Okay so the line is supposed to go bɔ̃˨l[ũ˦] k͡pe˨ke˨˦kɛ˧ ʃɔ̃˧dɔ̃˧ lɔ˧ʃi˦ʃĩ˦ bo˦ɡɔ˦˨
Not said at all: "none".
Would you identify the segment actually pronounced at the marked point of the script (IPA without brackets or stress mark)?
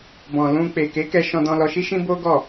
ũ˧